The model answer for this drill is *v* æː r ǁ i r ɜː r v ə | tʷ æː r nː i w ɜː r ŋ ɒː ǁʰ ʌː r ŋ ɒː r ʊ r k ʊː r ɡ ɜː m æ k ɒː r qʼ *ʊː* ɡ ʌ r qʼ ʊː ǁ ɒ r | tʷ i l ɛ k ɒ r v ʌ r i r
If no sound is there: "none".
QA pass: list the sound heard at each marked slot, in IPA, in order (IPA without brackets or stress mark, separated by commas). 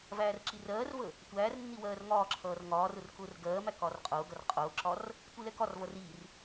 v, ʊː